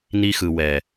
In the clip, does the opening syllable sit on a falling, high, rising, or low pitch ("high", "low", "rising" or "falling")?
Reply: high